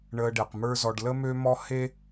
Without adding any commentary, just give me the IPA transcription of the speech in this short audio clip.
ɳ əː˧ ɖ e˨ q m ə˞˦ z ɔ˧ ɖ l ə˦ m ø˦ m ɔ˦ h e˦

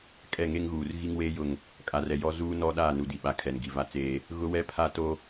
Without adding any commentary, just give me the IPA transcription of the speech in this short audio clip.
kʼ ɛ˦˨ ŋ e˦ ŋ ɣ uː˨ r ɣ i˦ ŋ w eː˦ j ʊ˦˨ ŋ | kʼ a˨ r ɛ˨ j ɔ˦ z uː˦ n ɔ˦ ɗ aː˦˨ n u˨ d i˨ ɓ a˨ kʰ ɛ˨ n ɡ i˨ v a˦ t͡s eː˦ | ɣ ʊ˦ w ɛ˦ pʰ a˦ t o˦

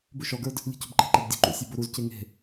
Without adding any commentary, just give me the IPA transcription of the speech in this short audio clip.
b ʉ ʃ ɔ ɡ ə˞ d | lʲ e̤ c o̤ b ǃ e̤ ǃ ɛ b dʲ o̤ ǃ ṵ sʲ o b o ɾ u z c e ŋ e̤

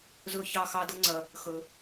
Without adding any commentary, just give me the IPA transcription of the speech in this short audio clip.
z ɵ˥˧ ç ɑ˥˧ x ɑ˥ d ɤ˥ ŋ͡ǀ ɐ˧ | x ɵ˧

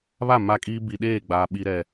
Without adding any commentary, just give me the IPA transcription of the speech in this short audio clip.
β a˦˨ m a˦ kʼ iː˦ b i˨ ɗ eː˦˨ ɡ͡b aː˨ ɓ i˨ ɾ ɛ˨

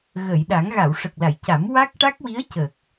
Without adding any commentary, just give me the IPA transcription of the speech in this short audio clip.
ɣ ə˨˩˨ j ɗ a˨˩˦ ŋ ɣ a˨˩˨ w ʂ ə˨˩ k̚ l a˨˩˨ j c a˨˩˦ m w a˦˥ k̚ ʈ a˦˥ k̚ w i˧˥ ə̯ c ə˨˩ k̚

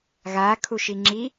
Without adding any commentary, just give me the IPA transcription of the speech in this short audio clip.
ɣ a kʰ u ʃ i ŋ͡ǁ i

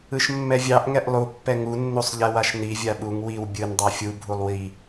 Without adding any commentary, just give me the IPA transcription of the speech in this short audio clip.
ɯ ʃ mː ɛ vʲ ɑ ʔ ŋ ɛ ʔ lˠ u pː ɛ ŋ u nː u sˤ ʎ ɛ w a ʃ n i vʲ a ɓ u ŋ w i w bʲ ɯ n dˤ ɑ fʲ u bʱ u lˠ w i

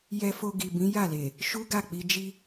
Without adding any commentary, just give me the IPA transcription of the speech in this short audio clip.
j ɛ˧ f o˧ ɡ i˨ b ĩ˨˦ j a˦˨ l e˨ | ʃ u˦ ɡ a˦˨ k͡p i˧ d͡ʒ i˦

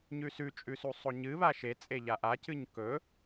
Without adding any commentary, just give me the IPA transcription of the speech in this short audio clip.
ɲ ʉ s ʉ t͡ʃʼ ʉ s u sˤ o ɲ ɨ β a ʃ e t͡sʼ e ʎ a ʔ a c ɨ ɲ k ɵ

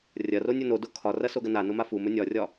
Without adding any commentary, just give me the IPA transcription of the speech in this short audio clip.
rʲ ɐ r o nʲ ɵ n o d o kʰ ɒ r ɐ s o ɡ ɐ n a n o m a f u m ɵ nʲ ɒ rʲ ɒ

